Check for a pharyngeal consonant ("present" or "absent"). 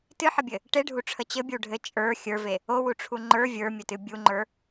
present